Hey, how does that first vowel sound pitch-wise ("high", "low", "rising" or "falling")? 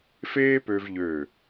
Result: high